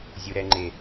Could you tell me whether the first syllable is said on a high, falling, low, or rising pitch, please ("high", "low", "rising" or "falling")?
low